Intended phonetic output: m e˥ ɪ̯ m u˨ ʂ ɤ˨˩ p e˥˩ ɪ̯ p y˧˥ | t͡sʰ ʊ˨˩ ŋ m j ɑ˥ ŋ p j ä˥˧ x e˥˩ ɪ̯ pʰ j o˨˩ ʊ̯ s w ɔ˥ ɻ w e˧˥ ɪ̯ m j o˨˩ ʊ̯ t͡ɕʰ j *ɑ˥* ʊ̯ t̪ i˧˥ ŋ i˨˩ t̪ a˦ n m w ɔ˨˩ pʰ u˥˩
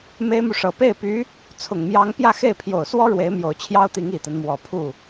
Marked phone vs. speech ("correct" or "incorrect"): correct